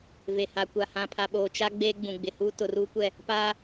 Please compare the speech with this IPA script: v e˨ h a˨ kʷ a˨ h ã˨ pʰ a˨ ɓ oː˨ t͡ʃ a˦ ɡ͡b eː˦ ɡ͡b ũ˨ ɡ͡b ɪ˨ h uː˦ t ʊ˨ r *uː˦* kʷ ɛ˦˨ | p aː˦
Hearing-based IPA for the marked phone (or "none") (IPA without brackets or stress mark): uː˦